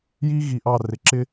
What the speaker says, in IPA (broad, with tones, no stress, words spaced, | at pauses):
ji˦ ɣi˨ʔɑ˦˨ rɪ˨ǁɪ˦